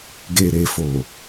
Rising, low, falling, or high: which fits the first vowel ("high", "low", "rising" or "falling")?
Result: low